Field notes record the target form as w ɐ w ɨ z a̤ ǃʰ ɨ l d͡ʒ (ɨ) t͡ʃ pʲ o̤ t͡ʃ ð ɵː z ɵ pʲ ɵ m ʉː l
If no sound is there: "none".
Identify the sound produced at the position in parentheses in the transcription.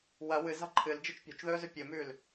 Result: ɨ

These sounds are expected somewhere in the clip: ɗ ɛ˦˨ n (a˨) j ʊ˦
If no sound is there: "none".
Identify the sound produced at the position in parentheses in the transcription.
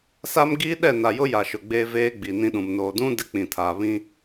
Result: a˨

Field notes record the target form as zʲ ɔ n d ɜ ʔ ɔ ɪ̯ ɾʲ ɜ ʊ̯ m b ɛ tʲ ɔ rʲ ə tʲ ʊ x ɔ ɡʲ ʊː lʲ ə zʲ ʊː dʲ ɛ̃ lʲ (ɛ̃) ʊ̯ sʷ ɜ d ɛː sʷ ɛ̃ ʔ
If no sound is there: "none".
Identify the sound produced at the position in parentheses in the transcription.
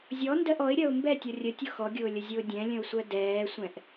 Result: ə̃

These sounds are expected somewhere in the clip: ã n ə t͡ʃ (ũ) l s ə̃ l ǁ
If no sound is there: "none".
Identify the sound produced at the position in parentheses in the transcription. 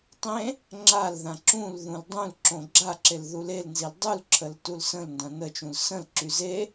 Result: ũ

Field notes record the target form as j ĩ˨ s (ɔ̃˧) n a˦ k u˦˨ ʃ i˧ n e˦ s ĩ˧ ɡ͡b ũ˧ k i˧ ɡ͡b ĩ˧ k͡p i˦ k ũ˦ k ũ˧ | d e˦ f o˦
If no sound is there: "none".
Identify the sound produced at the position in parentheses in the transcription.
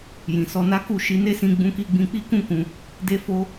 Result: ɔ˧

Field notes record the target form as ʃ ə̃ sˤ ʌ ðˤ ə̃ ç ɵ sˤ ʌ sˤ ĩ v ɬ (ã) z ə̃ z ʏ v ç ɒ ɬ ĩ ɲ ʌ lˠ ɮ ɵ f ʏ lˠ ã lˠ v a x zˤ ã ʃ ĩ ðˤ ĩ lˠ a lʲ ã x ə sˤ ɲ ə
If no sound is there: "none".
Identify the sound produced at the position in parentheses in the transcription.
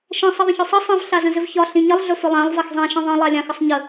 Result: a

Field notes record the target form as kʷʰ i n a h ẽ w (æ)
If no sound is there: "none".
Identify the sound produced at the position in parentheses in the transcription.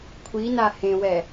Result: ɛ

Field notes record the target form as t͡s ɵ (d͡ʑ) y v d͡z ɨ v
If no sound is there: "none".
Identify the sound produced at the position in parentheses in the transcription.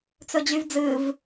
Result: d͡ʑ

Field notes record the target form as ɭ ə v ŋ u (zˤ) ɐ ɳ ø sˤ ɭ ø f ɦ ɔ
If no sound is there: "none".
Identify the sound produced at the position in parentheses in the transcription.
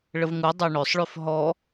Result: dˤ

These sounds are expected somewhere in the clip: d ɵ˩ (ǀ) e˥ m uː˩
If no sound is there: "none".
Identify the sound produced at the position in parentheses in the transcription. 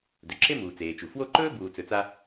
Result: ǁ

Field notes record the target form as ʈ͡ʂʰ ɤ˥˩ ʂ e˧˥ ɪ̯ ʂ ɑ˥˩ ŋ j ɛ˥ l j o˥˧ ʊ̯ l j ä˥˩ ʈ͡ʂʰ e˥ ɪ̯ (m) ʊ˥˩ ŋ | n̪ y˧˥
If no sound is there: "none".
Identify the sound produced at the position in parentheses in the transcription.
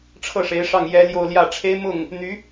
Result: m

